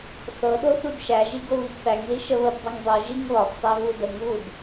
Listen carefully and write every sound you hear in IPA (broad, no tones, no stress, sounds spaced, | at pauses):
θ ɤ ɗ o θ u d ʃ æ ʒ i ɡ o β i d θ æ ŋ l i ʃ ə β ə b dˤ ɯ ŋ dˤ ɤ ʒ i ŋ β ɒ b tˤ æ β u d ə ŋ β u d